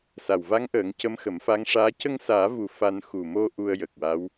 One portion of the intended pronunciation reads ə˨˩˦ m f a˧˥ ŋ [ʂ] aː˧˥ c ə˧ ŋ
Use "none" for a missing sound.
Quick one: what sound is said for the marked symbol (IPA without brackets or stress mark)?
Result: ʂ